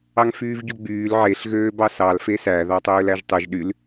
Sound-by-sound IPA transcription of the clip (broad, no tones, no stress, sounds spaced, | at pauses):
ɑ ŋ f yː v ɟ u ɡ͡b yː l ʕ e ɬ ɣ øː b ɑ s ɑ l f e s æ ð ɑ tˤ øː l æ ʒ tˤ ɯ ʒ ɗ y l